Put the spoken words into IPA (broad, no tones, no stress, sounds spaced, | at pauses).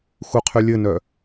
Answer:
x u qʰ y lʲ ɘ n œ